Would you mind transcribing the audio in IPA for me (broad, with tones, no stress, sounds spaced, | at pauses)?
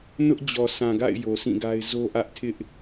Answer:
n ʊ˦ ʔ d͡ʑ ɔ˨ s ã˨ ɡ a̰˦˨ ɪ̯ j o˨ s ĩ˦˨ ɡ a˦ ɪ̯ z o˦ ʔ ä˦ ʔ tʰ ɪ˦ ʔ